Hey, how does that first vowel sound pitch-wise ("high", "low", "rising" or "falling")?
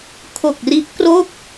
low